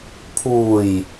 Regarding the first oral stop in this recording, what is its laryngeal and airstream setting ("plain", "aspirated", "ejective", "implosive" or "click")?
aspirated